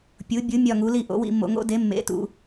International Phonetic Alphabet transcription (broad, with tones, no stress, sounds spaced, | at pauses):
pʲ u˩˥ bʲ u˩˥ mʲ ɒ˦˨ ŋ u˩˥ l i˦˨ ʔ o̰˩˥ w ḭ˦˨ mː o̰˨ ŋ o̰˧˥ d e˩˥ mː ḛ˩˥ t ṵ˨